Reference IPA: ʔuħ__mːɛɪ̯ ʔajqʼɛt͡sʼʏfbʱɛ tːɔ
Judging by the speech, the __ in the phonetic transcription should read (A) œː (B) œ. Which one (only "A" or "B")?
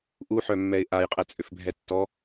B